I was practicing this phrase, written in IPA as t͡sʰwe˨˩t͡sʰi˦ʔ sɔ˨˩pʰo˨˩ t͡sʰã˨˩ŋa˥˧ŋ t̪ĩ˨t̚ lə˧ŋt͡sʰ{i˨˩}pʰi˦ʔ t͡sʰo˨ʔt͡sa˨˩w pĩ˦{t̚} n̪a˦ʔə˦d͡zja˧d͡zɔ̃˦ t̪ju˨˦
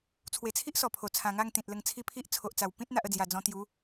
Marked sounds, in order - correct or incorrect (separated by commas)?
incorrect, correct